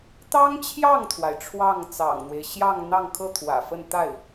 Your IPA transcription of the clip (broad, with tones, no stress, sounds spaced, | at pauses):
t̪ ɑ˥ ŋ t͡ɕʰ j ɑ˥˩ ŋ t̪ʰ w a˩ ɪ̯ ʈ͡ʂʰ w ɑ˥˩ ŋ t͡s ɑ̰˨˩ ŋ n̪ w e˦ ɪ̯ ɕ j ɑ˥˧ ŋ n̪ ɑ˥˧ ŋ kʰ ɤ˥˩ t̪ʰ w ä̰˨˩ f ə˥˧ n t̪ a˥˩ ɪ̯